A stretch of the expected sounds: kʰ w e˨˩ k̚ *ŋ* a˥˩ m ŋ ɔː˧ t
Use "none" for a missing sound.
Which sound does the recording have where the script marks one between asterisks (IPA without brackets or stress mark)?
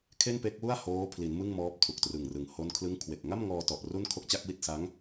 ŋ